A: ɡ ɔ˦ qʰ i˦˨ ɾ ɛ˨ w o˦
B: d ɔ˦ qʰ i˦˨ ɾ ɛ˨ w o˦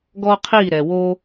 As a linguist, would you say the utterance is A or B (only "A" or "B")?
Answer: A